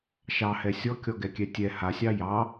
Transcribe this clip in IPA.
ʃ ɑ h ɛ sʲ ɔ kʲ ɔ ɡ ɛ kʲ ɛ tʲ ɛ h a sʲ ɑ j ɑ

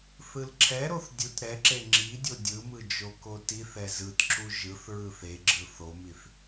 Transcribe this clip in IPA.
θ ɯ l ǁʰ ɛ ɾ o θ dʲ u t ɾ ɛ ǁ e ŋ͡ǁ i dʲ o dʲ ɯ m ɯ d͡ʒ o k o t i θ ɛ z ɯ t ǁ u ʒ ɯ θ ɹ ɯ θ e ɡ͡ǁ ɯ θ o m i θ

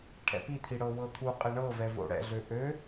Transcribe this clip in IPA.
ʈʰ ɛ̰ p i t̪ʰ i ɽ ɤ w ɤ t̪ʰ u qʼ e ɳ ɤ v ɛ v o̰ ɽ ɛ̰ ɮ ø ʔ ø

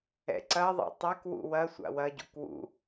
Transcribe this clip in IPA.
ɛ̰ ǀ ɐ ðˤ ɛ̰ tˤ ɛ k w ṵ w ɐ sʷ a̰ w ɐ ɟ ṵ k w ṵ

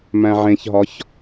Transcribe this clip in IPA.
m æ̃ ʕ ẽ ç ɦ ɒ ç

